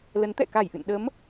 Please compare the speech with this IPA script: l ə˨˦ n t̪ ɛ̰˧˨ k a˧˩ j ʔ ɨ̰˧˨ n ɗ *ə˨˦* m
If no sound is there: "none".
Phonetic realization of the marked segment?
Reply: ə˨˦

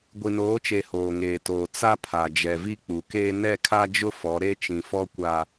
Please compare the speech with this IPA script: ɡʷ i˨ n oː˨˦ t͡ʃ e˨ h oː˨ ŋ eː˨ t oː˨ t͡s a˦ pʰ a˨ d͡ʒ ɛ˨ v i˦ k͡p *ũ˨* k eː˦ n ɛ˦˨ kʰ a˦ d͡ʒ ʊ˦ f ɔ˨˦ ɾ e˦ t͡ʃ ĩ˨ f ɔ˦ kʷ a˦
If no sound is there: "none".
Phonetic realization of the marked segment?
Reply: u˨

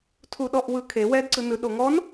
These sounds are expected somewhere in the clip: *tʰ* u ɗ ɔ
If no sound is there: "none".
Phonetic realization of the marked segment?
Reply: tʰ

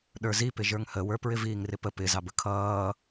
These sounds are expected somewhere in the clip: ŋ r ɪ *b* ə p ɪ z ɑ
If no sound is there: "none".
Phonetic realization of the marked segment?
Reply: p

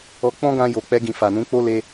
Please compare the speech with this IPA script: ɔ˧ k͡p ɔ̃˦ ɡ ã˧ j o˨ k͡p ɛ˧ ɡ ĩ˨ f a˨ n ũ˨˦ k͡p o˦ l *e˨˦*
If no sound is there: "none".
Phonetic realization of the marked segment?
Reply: e˧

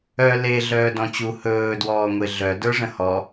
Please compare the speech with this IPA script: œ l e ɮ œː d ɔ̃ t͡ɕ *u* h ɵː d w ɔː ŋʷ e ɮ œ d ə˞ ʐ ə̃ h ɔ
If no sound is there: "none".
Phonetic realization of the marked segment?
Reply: u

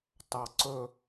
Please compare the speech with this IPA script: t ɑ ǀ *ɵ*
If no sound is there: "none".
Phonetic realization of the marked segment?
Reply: ɵ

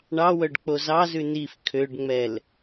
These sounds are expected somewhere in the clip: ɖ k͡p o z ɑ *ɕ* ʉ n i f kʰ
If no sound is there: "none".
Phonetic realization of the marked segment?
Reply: z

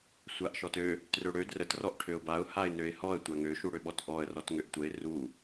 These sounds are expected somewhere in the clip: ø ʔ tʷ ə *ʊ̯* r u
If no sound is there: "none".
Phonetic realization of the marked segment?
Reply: ɪ̯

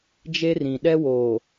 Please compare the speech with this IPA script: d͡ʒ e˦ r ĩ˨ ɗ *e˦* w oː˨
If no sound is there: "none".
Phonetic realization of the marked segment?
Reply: ɛ˦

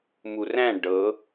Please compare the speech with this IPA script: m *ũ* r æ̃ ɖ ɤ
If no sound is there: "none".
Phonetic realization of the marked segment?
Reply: u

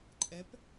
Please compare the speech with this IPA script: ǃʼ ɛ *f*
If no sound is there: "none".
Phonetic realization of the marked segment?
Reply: p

